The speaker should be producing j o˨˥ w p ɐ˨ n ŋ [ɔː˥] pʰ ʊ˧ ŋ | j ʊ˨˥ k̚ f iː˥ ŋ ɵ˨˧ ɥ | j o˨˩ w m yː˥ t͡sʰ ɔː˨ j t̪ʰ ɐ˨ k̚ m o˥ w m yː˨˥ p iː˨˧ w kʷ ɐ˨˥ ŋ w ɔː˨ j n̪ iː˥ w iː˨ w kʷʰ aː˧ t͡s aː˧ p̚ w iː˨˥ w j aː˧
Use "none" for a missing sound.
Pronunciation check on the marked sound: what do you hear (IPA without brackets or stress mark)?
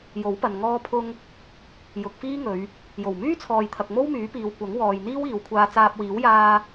ɔː˧